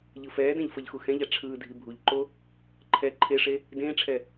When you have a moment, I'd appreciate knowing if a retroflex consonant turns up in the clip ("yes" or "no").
yes